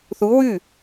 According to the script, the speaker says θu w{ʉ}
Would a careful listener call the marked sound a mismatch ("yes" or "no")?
no